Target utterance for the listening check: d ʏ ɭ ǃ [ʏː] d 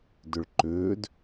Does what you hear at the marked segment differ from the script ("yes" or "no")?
no